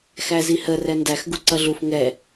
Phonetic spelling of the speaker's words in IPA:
xæzihə rɛndæx ɡuǀʌɮuf ŋɛ

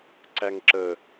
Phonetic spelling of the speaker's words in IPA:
ǀæŋǁə

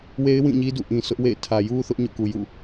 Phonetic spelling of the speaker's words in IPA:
we˦ɪ̯wĩ˦˨ɲi˦ dṵ˦˨ʔĩ˨sʊ˦ʔ wḛ˦˨ɪ̯ tʰä˨ju˦ θʊ˦ʔɲo̰˦˨ku˨jṵ˦˨

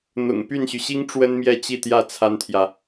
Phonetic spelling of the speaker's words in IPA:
n̪ʊ̰˨˩ŋ py˥˩nɕy˩ɕi˥ŋ ʈ͡ʂwə˥nmjɛ˥˧ t͡ɕi˥˧t̪jä˥˩ t͡sʰa˥nt̪ʰjä˨

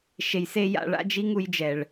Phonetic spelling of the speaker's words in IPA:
ʃe˧jse˦ ja̰˨˦ɭ a̰˦d͡ʒi˦ŋu˧jd͡ʒɛ˨ɭ

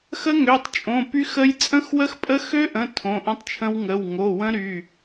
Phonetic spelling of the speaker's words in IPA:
xə˦˥ŋø˩˧˩tˤt͡ʃʼõ˩˧˩ py˦˥xə˦˥j t͡sʼə̃˦˥xwə˦˥xpʼə˦˥ xø˦˥ʔə̃˩˧˩ tʰõ˩˧˩ʔə̃˦˥tˤt͡ʃʰə̃˦˥w ŋə˩˧˩w ŋo˩˧˩wə̃˦˥ɾy˩˧˩

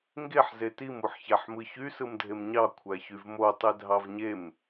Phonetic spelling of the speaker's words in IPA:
ŋɡeħ zetim uħçæħmɯçy sɯmdʱemɲɑ kʷʰæçyvmo tˤedʱɑvɲem

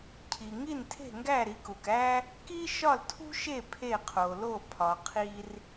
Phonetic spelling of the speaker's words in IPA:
cʰi˩ŋi˥˩ntʰe̤˥˩ŋɡæ˥˩ ɾi˩˥ku˩kæ˥ | ki˥ ʃɒ˥˩ltʰṳ˥ʃe˥˩ pʰe˥˩qʰo˩lo˥˩ pʰɒ˩qʰi˧r

